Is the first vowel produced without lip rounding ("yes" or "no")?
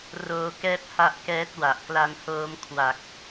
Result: no